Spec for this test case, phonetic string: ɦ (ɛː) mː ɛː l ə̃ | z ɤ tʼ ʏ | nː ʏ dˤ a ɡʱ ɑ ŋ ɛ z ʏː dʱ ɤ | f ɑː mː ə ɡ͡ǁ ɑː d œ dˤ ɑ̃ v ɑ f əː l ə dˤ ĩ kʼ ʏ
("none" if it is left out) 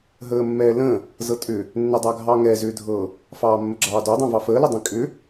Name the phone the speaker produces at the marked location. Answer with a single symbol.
əː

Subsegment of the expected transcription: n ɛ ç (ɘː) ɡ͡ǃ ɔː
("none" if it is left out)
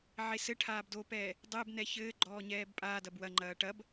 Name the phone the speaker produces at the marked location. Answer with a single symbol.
ɘː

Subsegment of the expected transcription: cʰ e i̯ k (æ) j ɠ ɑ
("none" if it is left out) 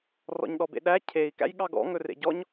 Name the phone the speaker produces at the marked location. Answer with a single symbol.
æ̰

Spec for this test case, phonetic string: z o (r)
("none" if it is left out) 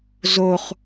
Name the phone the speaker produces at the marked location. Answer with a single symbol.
χ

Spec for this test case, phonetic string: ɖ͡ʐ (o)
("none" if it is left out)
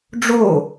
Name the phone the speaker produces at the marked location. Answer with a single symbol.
o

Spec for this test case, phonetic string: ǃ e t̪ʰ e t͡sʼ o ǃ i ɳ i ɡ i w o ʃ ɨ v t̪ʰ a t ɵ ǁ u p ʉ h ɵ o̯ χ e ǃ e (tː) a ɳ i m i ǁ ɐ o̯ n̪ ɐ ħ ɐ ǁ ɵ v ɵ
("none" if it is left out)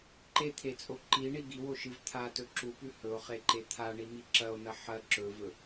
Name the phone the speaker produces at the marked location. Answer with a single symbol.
t̪ʰ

